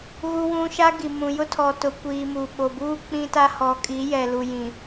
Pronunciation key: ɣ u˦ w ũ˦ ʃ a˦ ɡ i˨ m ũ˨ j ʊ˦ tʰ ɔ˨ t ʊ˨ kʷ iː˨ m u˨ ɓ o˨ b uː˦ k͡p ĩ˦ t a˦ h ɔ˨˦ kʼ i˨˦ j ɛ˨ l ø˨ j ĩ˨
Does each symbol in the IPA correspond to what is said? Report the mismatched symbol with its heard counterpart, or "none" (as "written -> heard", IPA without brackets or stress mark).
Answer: ø˨ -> u˨